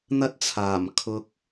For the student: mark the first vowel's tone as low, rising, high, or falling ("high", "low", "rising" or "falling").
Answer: high